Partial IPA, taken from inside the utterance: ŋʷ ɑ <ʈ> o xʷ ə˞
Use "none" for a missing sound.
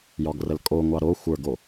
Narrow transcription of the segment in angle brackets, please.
ɾ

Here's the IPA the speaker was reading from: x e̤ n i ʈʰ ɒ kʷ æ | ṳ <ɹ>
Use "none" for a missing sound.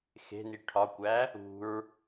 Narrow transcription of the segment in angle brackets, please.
ɹ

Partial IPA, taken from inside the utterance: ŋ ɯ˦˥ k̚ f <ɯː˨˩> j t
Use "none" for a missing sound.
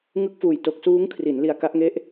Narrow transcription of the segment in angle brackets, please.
uː˨˩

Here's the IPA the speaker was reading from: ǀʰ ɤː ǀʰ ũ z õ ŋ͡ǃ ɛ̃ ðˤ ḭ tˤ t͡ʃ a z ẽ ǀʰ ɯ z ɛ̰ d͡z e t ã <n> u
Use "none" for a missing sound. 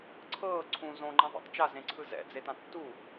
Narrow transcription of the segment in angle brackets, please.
tː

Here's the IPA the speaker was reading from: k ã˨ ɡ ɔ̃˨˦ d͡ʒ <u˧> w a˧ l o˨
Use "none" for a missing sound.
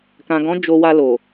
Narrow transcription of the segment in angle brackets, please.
o˧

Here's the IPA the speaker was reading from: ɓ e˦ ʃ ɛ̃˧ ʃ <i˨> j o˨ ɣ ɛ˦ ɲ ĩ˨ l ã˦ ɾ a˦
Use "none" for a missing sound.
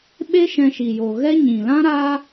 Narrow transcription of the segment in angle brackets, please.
i˨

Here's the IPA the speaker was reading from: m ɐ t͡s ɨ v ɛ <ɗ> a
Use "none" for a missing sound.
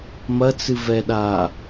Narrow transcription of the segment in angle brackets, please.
ɗ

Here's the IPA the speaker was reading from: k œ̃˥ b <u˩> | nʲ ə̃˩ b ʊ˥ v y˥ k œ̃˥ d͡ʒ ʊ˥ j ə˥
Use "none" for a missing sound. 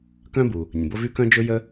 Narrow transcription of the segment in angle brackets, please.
u˩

